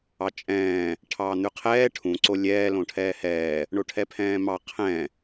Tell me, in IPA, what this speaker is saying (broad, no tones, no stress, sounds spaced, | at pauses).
ɑ t͡ʃʼ ɛ̃ː | ʈʰ ɑ n̪ ʉ qʰ ɛː ʈʰ ũ ǀ o lʲ ɛː l õ ʈʰ ɛː h ɛː | ɳ o ʈʰ ɛ pʰ ɛ̃ː m ɑ qʰ ɛ̃